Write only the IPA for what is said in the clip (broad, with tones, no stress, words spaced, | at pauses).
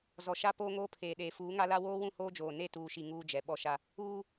zɔ˨ʃa˦ poː˦ŋoː˦pʰeː˨ ɗeː˨fuː˨˦ŋa˦la˦ woː˦wũ˦˨ hoː˦d͡ʒoː˨ ne˦˨tuː˨ʃi˨ ŋuː˦d͡ʒɛ˨ ɓɔ˦ʃa˦ | uː˦